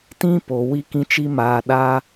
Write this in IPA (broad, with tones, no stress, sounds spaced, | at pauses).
t ĩ˦ p o˨ w i˧ k ĩ˧ t͡ʃ i˧ m aː˨ ɗ aː˧